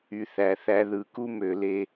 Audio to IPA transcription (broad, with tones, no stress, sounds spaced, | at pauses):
y˨ θ æ˨ θ æ˦ ð ɯ˨ k u˦ m ø˨ l e˦